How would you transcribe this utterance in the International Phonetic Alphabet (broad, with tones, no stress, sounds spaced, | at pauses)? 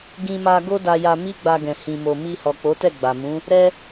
ɡ ĩ˧ m a˧ ɡ o˦ d a˧ j a˧ m i˦ ɡ͡b a˧ ɡ ɛ̃˨ h ĩ˨ m o˨ m i˧ h ɔ˨ k͡p o˨˦ t ɛ˦˨ ɡ͡b a˨ m ũ˨˦ | ɾ ɛ˧